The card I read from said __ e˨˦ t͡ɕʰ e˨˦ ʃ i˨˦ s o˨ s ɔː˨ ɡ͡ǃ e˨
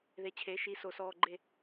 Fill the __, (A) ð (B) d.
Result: A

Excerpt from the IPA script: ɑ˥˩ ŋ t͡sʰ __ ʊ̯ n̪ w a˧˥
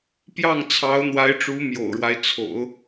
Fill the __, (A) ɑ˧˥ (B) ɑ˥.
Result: A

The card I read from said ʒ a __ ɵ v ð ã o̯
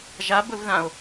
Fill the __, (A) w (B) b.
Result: B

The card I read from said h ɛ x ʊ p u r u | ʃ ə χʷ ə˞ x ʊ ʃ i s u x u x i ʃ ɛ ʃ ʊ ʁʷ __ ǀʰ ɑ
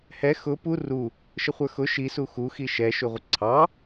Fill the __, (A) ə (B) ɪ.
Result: A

